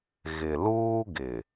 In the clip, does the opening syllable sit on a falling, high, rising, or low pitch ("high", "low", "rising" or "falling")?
low